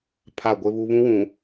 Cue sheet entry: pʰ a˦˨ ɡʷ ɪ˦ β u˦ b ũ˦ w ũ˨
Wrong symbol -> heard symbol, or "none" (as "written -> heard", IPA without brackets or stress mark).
b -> β